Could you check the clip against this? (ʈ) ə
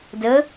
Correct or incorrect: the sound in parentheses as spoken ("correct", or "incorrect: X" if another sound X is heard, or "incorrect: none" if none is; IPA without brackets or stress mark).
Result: incorrect: d